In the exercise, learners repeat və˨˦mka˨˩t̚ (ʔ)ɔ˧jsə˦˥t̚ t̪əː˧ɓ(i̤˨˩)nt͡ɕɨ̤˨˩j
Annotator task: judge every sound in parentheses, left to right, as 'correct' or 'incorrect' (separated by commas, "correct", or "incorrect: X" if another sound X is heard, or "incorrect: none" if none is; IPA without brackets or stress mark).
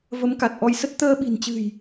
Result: correct, correct